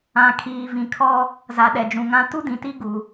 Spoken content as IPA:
ã˨kʰiː˨vĩ˨kʰɔ˦ | za˨ɗɛ˨d͡ʒũ˨ŋã˦ tu˦dĩ˨ti˦ ɡu˨

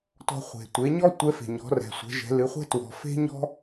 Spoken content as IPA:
tɔ̤˧χʷe̤˩ tʷe˩˧ɲɔ˥ tʷɛ˧˥fe̤˩ɲɔ̤˩˧ rɛ̤˩sʷɛ̤˩˧ʒɛ̤˩˧ lɨ˩˧χʷɛ̤˥ twɔ̤˩fe̤˥ ɲɔ̤˥

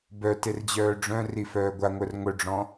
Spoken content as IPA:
bœt erd͡ʑœːɖ͡ʐœ̃ri fœːɡʷaŋʷœr ŋʷœɖ͡ʐɔ̃

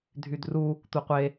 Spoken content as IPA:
dʱydru | tʷɤqʷe

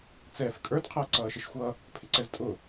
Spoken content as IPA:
t͡sɛːfkʼə˞d qʰʌːǀʌːʃɪʃxʷʌ | pʰɪǀɛztʼʊ

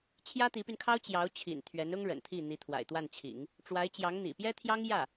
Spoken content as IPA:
t͡ɕʰjä˥t̪i˧˥py˧nkʰɑ˥ʊ̯ t͡ɕjɑ˧˥ʊ̯t͡ɕʰḭ˨˩n t̪ʰɥɛ˧˥nʊ˥ŋɻə̰˨˩nt̪ʰi˥˩ n̪i˧˥t̪ʰwa̰˨˩ɪ̯t̪wa˥˩nt͡ɕʰḭ˨˩˦ŋ | ʈ͡ʂwa˧˥ɪ̯t͡ɕjɑ˧˥ŋ n̪ḭ˨˩pjɛ˥t̪ʰjɑ˥ŋ jä˥˩

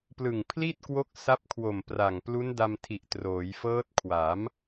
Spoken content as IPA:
plɯ˨˩ŋpʰli˥˩t̚kwo˦˥k̚ sa˦˥p̚kʰwo˨˩mpra˨˩ŋ plu˦˥nda˧mtʰi˨˩ʔ troː˩˦jfɤː˦˥t̚kʰwa˩˦m

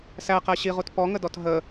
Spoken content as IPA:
sæqæ ɕiʁut pɔŋədɔt ɦə

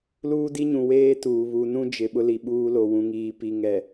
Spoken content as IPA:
luː˦di˦ɲũ˨ weː˦tuː˨ βu˨nũ˦d͡ʒɪ˨ ɓʊ˦li˨ɓuː˦lo˨ wũ˨ŋiː˨pi˨ ŋɛ˨

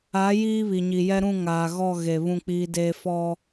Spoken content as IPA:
a˨˦ jiː˦βi˨ɲi˨jɛ˦ ɾũ˦˨ŋaː˨ɣɔ˦˨ ɣe˨ βũ˦˨k͡piː˦deː˦ fɔ˦

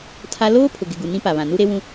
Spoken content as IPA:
tʰa˦ loː˦pʰʊ˨ɡɪ˨ ɡu˨ nĩ˦pa˨βã˨ nu˦ɾe˦wũ˦

